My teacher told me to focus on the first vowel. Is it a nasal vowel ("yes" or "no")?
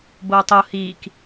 no